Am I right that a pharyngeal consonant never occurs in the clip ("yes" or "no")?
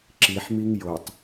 no